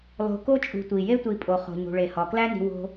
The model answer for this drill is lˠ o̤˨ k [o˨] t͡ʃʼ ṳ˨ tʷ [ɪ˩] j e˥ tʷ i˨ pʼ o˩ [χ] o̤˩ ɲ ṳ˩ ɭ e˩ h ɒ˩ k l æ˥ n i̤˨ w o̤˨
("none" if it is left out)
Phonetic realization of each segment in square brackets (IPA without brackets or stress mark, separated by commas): o˥, i˩, χ